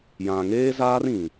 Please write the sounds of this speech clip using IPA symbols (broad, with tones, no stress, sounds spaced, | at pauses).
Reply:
j ã˨ ŋ eː˦ z aː˦ r ĩ˨